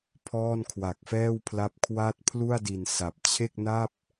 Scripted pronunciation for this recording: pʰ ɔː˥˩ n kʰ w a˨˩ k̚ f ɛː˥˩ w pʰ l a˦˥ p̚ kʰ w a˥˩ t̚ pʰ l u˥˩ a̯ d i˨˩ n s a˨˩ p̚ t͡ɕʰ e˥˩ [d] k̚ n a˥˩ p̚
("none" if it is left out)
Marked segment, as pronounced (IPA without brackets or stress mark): none